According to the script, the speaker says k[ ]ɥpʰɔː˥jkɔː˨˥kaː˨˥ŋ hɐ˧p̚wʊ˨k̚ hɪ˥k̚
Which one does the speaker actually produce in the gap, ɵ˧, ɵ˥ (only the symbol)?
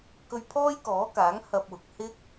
ɵ˧